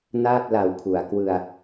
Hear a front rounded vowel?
no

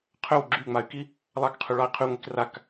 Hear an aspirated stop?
yes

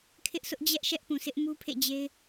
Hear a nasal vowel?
yes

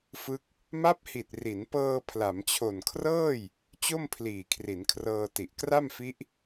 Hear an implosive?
no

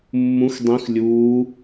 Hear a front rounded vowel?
no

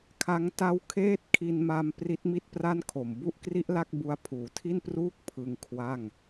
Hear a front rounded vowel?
no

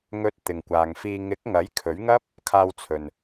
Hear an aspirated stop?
yes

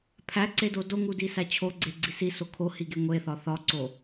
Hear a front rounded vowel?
no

